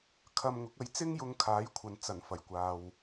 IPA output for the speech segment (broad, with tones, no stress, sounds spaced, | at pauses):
kʰ ɐ˧ m ŋ ʊ˨˥ k̚ ɐ˧ j t͡s ɪ˥ ŋ j ʊ˧ ŋ kʰ aː˨˥ j kʷʰ ɐ˨ n t͡s ɐ˨˩ n f ɐ˨˩ j kʷ aː˨ w